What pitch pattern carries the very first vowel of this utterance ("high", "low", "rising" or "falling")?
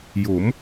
rising